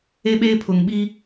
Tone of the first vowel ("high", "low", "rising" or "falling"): high